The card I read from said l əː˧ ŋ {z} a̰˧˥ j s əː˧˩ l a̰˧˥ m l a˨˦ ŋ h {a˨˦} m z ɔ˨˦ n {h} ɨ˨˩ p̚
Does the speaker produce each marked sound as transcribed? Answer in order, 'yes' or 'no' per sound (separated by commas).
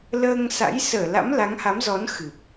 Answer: no, yes, no